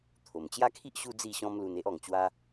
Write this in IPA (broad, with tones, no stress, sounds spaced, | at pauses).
t̪ʰ o˨˩ m t͡ɕ j a˦ kʰ i˦ ʔ ɕ u˦ d͡z i˥˧ ɕ ɔ̃˦ m l u˧ n e˦ ʔ ɔ˨˩ ŋ t͡ɕ w a˦